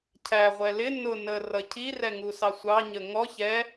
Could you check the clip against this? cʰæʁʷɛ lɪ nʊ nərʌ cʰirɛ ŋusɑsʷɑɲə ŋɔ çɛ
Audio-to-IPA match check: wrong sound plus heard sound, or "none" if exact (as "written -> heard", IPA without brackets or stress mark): none